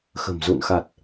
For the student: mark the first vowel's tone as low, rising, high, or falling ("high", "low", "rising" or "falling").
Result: low